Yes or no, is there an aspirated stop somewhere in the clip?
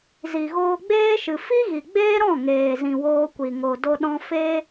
no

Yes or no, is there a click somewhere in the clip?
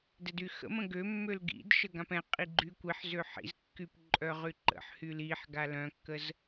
yes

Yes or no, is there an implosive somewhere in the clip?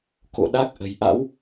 yes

